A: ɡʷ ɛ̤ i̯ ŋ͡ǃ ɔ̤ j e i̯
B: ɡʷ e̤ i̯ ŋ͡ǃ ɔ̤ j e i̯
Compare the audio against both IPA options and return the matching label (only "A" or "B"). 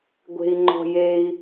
B